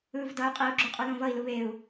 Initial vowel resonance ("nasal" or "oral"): oral